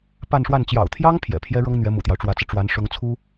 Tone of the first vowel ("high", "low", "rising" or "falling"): falling